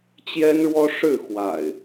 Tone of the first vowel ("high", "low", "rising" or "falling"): high